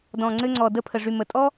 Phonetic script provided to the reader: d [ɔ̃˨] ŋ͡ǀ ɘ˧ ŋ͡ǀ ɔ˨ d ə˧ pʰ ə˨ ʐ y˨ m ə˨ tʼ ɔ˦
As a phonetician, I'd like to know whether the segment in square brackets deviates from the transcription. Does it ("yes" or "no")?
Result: no